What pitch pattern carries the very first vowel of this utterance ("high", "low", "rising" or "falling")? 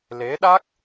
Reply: rising